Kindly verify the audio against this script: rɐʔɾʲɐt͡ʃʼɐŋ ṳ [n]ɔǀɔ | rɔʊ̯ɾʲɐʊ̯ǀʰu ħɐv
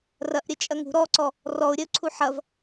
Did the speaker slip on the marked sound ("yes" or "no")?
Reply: yes